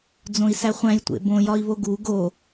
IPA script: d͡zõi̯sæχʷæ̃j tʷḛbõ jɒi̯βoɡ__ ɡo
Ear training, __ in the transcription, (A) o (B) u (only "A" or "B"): B